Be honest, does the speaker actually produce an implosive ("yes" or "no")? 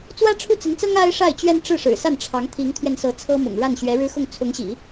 no